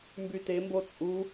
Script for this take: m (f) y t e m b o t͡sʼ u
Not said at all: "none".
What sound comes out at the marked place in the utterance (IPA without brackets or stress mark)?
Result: b